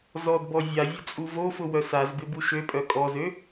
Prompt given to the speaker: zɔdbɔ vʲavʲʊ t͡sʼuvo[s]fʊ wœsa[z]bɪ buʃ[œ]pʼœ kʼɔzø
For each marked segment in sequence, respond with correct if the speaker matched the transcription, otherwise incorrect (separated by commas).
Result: incorrect, correct, incorrect